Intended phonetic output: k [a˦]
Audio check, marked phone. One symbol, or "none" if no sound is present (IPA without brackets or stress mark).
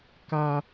a˦